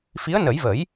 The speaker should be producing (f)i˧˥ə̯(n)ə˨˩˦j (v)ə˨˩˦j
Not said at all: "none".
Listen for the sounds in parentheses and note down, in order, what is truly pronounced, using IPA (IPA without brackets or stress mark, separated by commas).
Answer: f, n, v